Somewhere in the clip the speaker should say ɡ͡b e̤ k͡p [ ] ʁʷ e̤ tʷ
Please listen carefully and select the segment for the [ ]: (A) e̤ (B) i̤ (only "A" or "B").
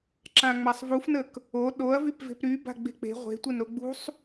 A